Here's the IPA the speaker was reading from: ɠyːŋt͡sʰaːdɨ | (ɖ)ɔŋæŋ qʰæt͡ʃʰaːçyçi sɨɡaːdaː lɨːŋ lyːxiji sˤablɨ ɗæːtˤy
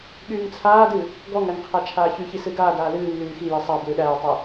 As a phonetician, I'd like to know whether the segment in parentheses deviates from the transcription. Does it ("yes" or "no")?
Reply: yes